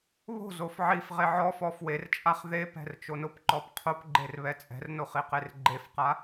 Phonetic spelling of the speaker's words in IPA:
β o̤ z o f ʕ i f ʁ e ʕ ɔ f ɔ f w e r t͡ʃʼ a χ ð e p ɛ̤ r t͡ʃ o n ʊ p ǃ ɔ p qʰ o p ɡ͡ǃ e r β ɛ t͡sʼ ɛ̤ r n o χ i q e r ɡ͡ǃ e f q a

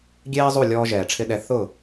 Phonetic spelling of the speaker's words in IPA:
ɡʲ eː˥ zˤ u˥˩ lʲ ɔː˧ ʒ ɛː˩ ʈ͡ʂʰ ɪ˧ ɗ ɛ˩˥ θ ʊ˥˩

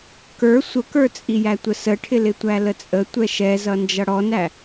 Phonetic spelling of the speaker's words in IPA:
k ə˞ sʷ ə k ə˞ t͡sʼ i j æ tʷ ə s ə ʈʰ ɪ l ɪ tʷ æ l ə t͡sʼ ə tʷ ɛ ʃ ɛ z ʌ n d͡ʒ ʌ ɽ ɔ n æ

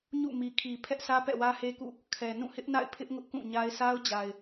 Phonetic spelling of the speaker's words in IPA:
ɲ ṵ˦˨ m i˨ kʰ i˨ pʰ ɛ˦ ʔ sʰ ä˦ p ɛ̰˦˨ w ä˦ h e˦ k ṵ˦˨ | kʰ ɛ˨ n ũ˦˨ h ɪ˦ ʔ n a̰˦˨ ɪ̯ pʰ ɪ˦ ʔ ŋ ʊ˦ ʔ k ũ˦˨ ɲ a˦ ɪ̯ s a˦ ʊ̯ d͡ʑ a˨ ɪ̯

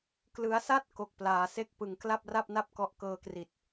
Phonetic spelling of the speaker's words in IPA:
k l ɯ˦˥ a̯ s a˥˩ t̚ k o˦˥ k̚ p l aː˧ s e˥˩ k̚ p ɯ˧ ŋ k l a˥˩ p̚ r a˥˩ p̚ n a˥˩ p̚ k ɔ˦˥ ʔ k ɤː˧ k r i˨˩ t̚

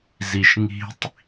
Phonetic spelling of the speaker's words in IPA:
z i ʃ ŋ i̤ tˤ

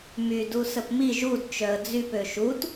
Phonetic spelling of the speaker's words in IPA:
m y d u s ə p m i ʒ u d t͡ʃ œ ə̯ d͡z y p ø ʃ u t

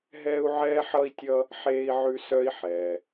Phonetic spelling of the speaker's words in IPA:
ɦ ɛː˥ u̯ ʕ ɛː˥ ħ ʌ˥ i̯ tʲ ʌ˥ | ħ eː˥ i̯ ʕ ʉ˥ s œ˥ i̯ ħ ɛː˩

